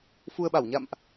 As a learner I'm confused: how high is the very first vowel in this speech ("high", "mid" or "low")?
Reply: high